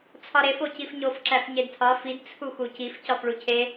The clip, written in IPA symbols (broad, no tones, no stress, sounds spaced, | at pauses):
t͡sʰ ɒ ɾ e f o c i f ɲ o f ǁ æ f ɲ e d tʰ ɒ f i d t͡sʰ u x u c i f c ɒ f ɭ u cʰ e